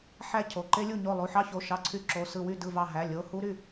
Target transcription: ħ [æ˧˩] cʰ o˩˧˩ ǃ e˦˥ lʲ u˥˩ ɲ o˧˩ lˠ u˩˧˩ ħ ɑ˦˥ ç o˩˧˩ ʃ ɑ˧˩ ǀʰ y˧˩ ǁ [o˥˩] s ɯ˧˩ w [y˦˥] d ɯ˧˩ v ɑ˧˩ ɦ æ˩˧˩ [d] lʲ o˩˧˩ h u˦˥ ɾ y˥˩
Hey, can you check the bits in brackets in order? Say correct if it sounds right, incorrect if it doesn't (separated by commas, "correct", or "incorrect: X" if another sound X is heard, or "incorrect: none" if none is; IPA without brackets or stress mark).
incorrect: æ˦˥, incorrect: o˩˧˩, incorrect: y˥˩, incorrect: none